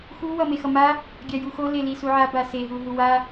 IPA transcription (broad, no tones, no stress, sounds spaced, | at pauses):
x u w ʌ m e x ʌ m a | ɡʲ a j u x o l e l i s u ʕ a b a s e ɦ u ɦ u w a